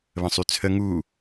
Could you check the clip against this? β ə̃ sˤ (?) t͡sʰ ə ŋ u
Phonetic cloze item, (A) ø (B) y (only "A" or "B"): B